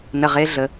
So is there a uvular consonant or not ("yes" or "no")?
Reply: yes